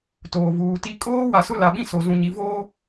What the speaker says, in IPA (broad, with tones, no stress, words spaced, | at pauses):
toː˨vuː˨ti˦ kʼoː˦ wa˨sʊ˦la˨ɓĩ˦ so˨ zũ˨ɲi˨voː˦